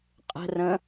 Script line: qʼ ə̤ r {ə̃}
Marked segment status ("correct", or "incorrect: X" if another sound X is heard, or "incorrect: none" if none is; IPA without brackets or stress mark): correct